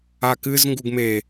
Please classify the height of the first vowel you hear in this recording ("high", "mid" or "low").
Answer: low